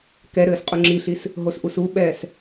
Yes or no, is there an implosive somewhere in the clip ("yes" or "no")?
yes